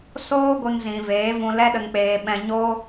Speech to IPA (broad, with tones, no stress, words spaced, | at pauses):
soː˦ɡʷe˧ŋ zĩ˨veː˨˦vũ˧ lɛ˦ɗə˧ŋk͡peː˧ ɓɛ̃˦ ɲoː˦